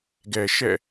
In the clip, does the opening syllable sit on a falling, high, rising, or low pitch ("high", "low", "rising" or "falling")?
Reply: low